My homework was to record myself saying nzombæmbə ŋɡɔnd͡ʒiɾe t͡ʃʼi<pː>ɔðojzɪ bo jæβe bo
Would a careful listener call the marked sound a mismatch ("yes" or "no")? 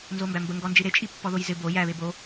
no